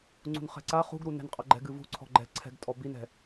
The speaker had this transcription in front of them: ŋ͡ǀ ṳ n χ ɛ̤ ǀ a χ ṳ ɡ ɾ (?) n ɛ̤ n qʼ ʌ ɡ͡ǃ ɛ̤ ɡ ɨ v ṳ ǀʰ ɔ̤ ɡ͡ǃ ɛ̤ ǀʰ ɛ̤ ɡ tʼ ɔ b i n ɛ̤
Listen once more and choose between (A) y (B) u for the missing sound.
B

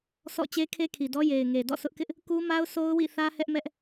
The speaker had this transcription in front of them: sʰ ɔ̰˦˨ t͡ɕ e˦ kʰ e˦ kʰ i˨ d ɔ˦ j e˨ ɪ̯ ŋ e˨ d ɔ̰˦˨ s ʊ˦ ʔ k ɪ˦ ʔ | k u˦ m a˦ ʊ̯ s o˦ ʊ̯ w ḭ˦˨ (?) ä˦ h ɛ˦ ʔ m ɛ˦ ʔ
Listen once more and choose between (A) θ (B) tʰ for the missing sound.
A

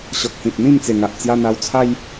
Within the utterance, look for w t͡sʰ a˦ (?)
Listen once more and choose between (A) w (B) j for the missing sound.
B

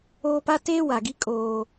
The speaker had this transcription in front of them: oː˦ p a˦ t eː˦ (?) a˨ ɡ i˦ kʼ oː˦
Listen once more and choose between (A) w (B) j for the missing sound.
A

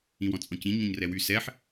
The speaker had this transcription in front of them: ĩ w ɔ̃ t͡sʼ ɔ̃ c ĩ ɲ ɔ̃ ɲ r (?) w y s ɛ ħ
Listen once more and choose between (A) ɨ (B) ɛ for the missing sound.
B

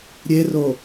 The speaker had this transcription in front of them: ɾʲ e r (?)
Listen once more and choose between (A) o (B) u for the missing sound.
A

